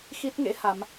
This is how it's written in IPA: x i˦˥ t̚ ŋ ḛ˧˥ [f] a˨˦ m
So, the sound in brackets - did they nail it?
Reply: no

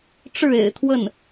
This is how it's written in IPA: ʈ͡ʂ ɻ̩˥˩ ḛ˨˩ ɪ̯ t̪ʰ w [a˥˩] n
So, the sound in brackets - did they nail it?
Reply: no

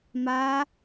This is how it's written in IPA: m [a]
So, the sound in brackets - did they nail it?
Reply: yes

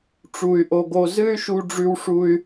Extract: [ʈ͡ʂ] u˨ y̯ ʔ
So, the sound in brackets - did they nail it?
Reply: yes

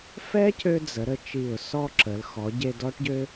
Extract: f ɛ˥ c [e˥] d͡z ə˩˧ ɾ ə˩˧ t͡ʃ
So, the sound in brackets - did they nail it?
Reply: no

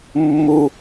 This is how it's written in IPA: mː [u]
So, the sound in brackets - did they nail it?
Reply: yes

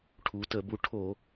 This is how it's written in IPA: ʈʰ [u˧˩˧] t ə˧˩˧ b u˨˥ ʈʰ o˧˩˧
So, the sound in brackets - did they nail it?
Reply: no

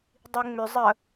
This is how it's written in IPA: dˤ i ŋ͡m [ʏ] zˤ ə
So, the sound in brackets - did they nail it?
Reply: yes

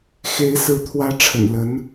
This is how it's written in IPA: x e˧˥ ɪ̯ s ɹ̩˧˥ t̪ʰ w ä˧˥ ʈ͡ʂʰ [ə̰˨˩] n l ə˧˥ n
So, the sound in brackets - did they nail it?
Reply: yes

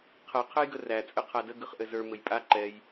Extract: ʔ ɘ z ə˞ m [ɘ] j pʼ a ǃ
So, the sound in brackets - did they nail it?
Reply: yes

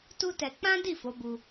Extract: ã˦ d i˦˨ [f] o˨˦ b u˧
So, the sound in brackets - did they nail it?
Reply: yes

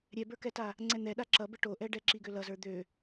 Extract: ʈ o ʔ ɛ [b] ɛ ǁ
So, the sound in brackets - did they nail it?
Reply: no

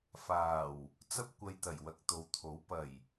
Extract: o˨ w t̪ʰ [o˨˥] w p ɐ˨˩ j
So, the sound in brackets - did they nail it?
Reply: yes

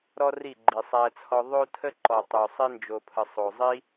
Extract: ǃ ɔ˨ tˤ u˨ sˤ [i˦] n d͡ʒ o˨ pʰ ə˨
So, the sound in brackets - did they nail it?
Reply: yes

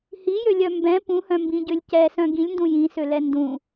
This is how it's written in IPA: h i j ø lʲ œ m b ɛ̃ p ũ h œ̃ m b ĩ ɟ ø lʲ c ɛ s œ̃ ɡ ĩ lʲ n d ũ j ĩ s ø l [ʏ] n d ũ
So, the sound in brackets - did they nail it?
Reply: no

